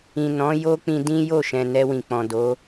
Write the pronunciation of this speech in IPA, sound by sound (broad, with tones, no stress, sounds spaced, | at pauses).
ĩ˨ n ɔ̃˨˦ j o˦ k͡p ĩ˧ d ĩ˦ j o˦˨ ʃ ɛ̃˨ n ɛ˧ w ĩ˨ k͡p ɔ̃˨ d o˨˦